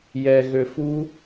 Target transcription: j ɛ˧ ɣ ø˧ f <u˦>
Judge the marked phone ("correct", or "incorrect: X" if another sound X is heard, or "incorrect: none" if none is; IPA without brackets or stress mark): correct